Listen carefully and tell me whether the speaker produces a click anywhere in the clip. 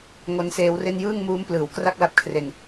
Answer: no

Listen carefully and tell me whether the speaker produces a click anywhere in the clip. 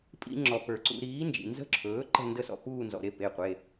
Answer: yes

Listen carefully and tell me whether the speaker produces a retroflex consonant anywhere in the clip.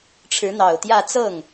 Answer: yes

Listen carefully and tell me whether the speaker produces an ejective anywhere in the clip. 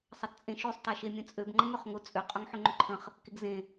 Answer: yes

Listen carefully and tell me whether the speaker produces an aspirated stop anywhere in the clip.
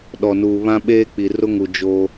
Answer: no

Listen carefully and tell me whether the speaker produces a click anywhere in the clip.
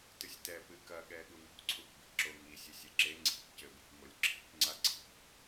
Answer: yes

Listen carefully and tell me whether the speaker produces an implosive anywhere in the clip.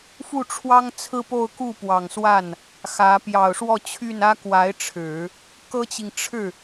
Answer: no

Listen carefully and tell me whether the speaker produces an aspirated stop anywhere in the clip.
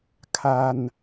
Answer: yes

